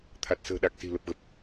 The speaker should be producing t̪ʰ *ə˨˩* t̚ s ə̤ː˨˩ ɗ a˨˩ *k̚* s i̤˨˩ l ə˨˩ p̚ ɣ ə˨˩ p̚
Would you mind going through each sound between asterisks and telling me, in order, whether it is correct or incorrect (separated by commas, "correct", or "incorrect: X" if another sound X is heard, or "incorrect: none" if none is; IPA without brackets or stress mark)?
incorrect: a˨˩, correct